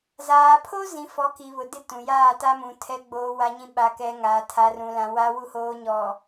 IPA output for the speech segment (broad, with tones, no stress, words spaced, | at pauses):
zaː˨pʰo˦ zĩ˨ fɔ˨˦ki˨βʊ˨ dɪ˦tũ˨jaː˦˨ta˦ mũ˨ tʰɛ˨ɡ͡boː˨ wa˨ɲĩ˨ ɓa˨kɛ˨ ŋaː˨tʰa˨rũ˨lã˨ wa˨wu˨hoː˨ɲɔ˨